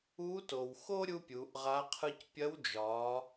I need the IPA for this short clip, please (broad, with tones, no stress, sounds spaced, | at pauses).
uː˧˥ t o˩ w x o˥ ɾʲ u˥ pʲ uː˩˧ ʔ ʁ a˧˥ qʰ ɯ˧ c pʲ ɐ˧˥ w d͡ʒ ɒː˩˧